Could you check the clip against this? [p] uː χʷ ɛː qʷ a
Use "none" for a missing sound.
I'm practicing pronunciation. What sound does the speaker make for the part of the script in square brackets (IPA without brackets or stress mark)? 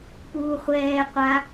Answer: p